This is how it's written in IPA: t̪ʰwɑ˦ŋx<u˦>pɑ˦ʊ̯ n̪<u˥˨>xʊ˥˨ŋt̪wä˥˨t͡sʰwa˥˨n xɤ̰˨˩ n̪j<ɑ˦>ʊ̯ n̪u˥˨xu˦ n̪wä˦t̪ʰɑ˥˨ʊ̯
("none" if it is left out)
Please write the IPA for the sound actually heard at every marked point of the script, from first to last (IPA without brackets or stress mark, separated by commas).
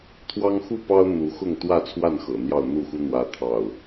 u˥˨, u˨˦, ɑ˥˨